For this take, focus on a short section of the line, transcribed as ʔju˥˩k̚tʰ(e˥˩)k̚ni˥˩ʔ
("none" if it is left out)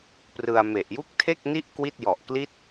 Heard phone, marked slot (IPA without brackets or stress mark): e˥˩